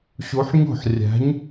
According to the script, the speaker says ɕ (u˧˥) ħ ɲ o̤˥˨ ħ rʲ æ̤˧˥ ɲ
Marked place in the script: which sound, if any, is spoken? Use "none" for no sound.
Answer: u˧˥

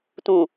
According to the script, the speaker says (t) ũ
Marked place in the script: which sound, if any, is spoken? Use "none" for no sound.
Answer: t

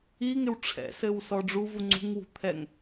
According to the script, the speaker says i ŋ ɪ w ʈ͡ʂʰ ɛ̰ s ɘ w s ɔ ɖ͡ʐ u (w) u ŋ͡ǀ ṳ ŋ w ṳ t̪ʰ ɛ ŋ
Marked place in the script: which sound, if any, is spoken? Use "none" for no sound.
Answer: v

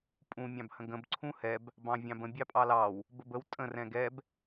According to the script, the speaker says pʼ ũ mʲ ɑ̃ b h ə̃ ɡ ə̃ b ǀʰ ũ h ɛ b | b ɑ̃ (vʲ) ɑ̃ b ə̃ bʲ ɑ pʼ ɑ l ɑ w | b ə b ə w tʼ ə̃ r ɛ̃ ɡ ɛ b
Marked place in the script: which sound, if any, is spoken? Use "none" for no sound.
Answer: vʲ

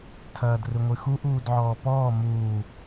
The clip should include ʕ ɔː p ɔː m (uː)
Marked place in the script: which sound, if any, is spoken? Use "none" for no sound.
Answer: uː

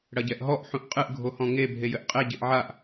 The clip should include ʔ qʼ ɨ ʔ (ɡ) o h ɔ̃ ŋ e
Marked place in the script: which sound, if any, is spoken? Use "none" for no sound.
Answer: ɡʱ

